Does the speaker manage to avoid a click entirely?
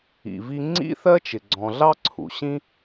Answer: no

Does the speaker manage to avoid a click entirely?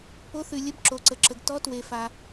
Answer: no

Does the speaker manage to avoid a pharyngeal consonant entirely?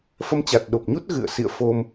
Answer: yes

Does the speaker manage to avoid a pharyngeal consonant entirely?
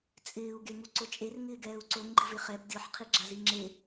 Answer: no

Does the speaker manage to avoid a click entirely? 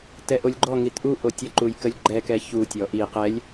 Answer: no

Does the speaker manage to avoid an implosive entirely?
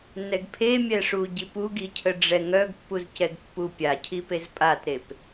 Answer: yes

